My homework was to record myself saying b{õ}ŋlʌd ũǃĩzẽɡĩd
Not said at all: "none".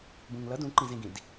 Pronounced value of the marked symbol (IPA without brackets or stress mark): ũ